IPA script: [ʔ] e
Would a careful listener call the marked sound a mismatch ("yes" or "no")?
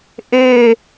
no